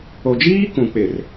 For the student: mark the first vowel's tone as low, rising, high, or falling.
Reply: low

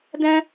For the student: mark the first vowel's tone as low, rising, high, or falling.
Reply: high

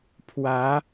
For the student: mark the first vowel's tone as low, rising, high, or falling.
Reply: rising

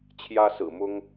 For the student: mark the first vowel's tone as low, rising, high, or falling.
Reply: high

